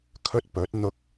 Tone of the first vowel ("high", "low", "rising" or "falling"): high